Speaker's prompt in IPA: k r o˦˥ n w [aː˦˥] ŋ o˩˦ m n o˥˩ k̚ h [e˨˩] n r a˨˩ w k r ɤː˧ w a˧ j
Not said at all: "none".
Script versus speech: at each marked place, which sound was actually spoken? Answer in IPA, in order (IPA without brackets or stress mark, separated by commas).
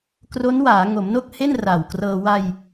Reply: aː˩˦, e˥˩